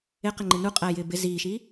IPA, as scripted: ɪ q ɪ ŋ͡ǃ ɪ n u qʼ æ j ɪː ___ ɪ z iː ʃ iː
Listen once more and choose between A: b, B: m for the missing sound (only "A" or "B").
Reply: A